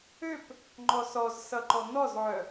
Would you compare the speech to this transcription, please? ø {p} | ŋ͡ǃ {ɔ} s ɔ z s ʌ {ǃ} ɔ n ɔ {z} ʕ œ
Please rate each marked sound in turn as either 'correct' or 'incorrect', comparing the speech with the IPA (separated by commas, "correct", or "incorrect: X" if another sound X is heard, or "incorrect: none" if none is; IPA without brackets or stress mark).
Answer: correct, correct, correct, correct